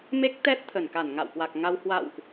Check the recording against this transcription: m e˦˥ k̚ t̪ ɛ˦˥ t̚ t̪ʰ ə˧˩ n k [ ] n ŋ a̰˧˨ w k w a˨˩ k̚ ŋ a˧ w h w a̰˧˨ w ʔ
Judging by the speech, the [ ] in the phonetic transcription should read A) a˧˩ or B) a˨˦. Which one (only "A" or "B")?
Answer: A